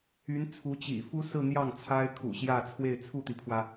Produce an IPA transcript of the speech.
y˧˥ n t͡sʰ u˧˥ t͡ɕ ḭ˨˩ f u˥ s ɹ̩˥˧ n̪ j ɑ˥˩ ŋ t͡sʰ a˥ ɪ̯ kʰ ṵ˨˩ ɕ j ä˥˧ t͡sʰ w e˥˧ ɪ̯ t͡sʰ u˥˩ t̪ i˩ pʰ w ä˩

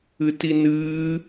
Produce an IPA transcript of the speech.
ɨ t i n ɨː

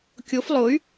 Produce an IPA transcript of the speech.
kʲ o f lˠ o y̯

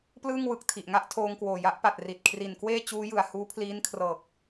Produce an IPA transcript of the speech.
p l ɯː˥˩ ŋ w ɯ˨˩ k̚ tʰ i˨˩ ʔ ŋ a˥˩ ʔ tʰ oː˧ ŋ k w oː˨˩ j a˦˥ ʔ p a˨˩ t̚ r i˨˩ t̚ kʰ r i˨˩ n k w eː˥˩ t͡ɕ uː˦˥ j ɯ˩˦ a̯ h uː˦˥ pʰ l iː˦˥ n kʰ r ɤː˨˩ k̚

